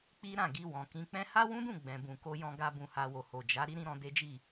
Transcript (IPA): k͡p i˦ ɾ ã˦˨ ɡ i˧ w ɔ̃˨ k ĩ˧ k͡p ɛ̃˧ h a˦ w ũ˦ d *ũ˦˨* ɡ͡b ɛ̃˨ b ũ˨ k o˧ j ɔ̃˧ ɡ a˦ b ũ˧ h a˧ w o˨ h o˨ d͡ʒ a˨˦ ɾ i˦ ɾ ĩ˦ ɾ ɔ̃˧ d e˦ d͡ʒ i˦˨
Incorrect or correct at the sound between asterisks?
correct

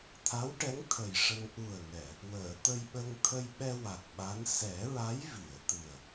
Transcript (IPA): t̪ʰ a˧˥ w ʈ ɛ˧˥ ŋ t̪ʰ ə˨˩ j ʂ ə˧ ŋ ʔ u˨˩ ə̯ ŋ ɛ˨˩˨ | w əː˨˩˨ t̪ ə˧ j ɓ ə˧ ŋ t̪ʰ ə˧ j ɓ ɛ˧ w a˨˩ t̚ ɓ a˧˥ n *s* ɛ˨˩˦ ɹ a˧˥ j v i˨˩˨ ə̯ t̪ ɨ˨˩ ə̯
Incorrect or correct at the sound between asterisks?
correct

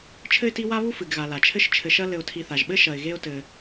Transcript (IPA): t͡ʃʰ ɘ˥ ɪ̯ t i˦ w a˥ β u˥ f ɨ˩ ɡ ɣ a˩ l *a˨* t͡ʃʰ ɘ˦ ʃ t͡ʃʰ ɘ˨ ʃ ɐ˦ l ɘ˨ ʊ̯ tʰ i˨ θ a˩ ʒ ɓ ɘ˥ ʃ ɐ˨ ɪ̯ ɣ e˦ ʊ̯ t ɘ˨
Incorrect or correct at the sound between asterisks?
incorrect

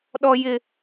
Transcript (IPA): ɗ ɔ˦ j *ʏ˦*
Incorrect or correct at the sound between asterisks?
incorrect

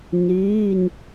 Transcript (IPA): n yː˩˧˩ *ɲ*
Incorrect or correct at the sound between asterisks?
incorrect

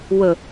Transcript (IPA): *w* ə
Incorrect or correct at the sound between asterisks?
correct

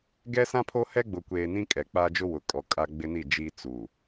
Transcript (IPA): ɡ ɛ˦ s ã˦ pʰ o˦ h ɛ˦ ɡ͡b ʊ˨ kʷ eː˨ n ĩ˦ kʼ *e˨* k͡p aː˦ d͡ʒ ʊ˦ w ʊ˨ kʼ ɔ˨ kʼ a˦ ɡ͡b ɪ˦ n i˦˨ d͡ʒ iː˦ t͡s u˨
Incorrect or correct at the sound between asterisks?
incorrect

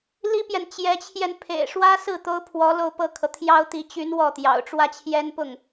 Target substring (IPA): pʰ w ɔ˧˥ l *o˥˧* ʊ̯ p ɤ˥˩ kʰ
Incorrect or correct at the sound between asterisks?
correct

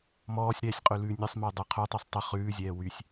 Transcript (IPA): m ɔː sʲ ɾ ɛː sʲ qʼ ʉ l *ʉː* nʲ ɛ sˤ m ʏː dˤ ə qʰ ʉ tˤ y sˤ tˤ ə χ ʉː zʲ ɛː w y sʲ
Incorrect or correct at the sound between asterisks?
correct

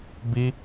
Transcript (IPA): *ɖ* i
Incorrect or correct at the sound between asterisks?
incorrect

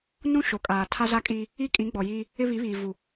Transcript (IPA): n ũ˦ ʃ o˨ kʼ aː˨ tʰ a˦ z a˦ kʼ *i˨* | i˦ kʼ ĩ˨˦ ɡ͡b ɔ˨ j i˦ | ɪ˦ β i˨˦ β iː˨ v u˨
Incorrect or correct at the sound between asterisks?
incorrect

